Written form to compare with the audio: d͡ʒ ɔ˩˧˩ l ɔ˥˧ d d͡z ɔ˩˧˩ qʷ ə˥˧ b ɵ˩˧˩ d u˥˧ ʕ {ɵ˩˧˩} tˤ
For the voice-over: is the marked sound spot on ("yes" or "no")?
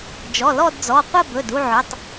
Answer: yes